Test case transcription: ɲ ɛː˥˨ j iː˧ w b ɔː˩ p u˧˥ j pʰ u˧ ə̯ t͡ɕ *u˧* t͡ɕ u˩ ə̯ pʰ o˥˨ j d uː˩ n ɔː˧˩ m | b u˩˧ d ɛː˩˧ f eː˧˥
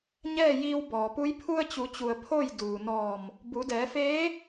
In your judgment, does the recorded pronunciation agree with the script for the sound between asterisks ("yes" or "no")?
no